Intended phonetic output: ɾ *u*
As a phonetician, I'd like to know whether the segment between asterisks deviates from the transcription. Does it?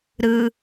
yes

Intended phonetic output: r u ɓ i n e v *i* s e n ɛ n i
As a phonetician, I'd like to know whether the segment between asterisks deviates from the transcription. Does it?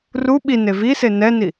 no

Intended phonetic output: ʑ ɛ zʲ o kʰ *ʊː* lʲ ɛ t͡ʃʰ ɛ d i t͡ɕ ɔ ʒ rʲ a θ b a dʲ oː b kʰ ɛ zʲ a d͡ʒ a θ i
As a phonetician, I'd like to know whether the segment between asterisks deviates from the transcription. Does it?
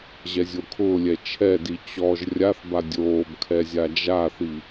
no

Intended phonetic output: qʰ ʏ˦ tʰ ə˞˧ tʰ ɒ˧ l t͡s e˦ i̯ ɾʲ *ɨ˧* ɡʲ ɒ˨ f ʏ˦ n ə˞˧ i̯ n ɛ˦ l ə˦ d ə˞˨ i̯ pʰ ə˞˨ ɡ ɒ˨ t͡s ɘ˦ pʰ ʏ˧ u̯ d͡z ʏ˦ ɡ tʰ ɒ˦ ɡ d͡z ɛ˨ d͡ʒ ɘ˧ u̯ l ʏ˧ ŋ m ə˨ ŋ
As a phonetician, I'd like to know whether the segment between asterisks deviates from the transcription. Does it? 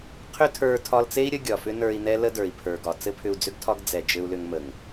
yes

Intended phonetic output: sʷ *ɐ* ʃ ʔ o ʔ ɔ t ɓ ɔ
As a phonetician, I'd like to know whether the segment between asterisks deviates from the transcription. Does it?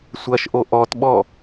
no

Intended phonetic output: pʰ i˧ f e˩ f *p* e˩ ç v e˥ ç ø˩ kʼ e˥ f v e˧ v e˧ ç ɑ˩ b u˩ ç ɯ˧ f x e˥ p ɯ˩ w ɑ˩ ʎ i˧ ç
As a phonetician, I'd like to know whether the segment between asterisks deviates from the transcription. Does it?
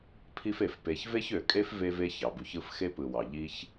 no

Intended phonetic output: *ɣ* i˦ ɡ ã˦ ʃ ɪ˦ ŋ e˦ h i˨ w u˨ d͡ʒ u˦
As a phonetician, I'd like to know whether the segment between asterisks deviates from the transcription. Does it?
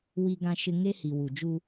yes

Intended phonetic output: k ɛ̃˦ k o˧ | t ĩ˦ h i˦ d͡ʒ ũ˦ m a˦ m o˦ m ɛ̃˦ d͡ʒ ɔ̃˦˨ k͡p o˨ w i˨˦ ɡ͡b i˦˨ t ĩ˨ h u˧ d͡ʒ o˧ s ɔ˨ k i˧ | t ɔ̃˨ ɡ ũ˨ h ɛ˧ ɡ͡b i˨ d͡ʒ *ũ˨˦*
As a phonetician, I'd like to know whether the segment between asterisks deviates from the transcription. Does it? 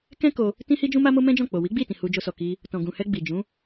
no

